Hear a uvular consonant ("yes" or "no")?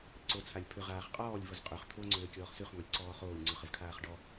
yes